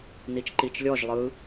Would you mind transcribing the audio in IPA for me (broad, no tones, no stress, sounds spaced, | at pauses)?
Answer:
n i t͡ʃ ǃ i t͡ʃ lʲ ɔ ʒ lˠ ɯ